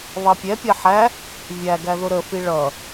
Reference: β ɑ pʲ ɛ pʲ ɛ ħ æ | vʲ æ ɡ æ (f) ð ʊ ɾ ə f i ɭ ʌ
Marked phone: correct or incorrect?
incorrect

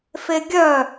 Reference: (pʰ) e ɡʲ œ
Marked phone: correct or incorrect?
incorrect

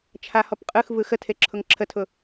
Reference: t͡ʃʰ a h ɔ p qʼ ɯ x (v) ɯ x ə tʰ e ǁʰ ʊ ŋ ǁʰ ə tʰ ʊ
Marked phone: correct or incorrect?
correct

